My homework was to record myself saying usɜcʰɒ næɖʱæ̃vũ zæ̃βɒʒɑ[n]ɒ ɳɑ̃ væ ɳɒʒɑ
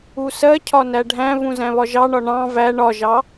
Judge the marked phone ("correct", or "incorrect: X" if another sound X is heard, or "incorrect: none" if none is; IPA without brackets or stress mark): incorrect: ɳ